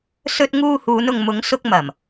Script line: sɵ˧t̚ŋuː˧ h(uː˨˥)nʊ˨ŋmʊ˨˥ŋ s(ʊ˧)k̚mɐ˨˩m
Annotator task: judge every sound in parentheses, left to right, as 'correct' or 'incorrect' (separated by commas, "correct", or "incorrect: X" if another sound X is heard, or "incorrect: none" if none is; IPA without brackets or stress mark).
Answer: incorrect: uː˨˧, correct